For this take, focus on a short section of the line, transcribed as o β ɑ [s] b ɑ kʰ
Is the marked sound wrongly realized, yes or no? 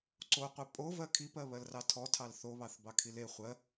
yes